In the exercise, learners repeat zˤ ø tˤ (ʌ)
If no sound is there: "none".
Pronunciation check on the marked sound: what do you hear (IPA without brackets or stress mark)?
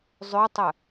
ə